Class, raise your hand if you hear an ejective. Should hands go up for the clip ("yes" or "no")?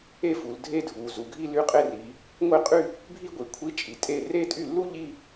yes